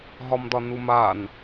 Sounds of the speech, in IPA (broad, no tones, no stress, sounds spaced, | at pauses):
ɦ ɒ m d ɒ n u m a n